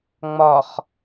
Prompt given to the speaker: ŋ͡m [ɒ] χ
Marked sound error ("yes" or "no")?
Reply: no